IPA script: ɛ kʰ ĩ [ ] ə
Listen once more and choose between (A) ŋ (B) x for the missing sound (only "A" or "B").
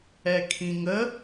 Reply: A